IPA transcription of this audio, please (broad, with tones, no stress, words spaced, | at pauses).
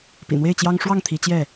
pḭ˨˩n̪we˥˨ɪ̯t͡ɕjɑ˦ŋ ʂwɑ˥˨ŋt̪ʰi˨˦ t͡ɕjɛ˥˨